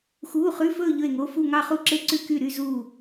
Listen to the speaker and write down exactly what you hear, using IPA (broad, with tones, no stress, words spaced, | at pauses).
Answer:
xuː˧˥˧χʉ˧˥˧fɵː˥˧ ʎɵ˥˧e̯ŋo˧˥˧ fu˥˧ŋɑ˥˧χu˥˧ǁe˥˧ ǀʉ˥˧ky˥˧ ɾy˥˧zuː˥˧